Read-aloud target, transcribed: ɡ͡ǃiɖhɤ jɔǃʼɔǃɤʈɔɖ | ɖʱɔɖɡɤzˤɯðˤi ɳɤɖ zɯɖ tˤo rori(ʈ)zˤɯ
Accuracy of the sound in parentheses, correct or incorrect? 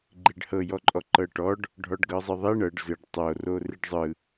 incorrect: ɖ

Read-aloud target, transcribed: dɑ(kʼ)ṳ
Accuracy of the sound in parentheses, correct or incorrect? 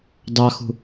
incorrect: x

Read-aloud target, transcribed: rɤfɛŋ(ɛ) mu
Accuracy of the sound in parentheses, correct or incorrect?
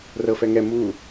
correct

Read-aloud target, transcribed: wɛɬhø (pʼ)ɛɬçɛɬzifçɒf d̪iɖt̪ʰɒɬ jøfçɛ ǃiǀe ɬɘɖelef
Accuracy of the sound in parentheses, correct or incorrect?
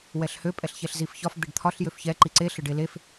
correct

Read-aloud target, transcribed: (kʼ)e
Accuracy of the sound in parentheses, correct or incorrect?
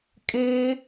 correct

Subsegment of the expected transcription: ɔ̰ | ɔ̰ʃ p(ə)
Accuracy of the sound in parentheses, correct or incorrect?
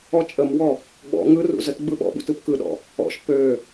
incorrect: ø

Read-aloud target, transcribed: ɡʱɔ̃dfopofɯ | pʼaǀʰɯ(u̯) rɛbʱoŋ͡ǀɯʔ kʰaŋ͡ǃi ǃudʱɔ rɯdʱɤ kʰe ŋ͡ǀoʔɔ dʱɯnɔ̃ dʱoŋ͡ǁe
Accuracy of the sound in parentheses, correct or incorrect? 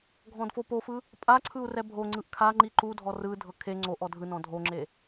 correct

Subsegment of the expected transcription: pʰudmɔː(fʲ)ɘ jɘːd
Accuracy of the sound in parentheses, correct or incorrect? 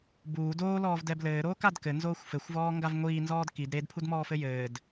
incorrect: f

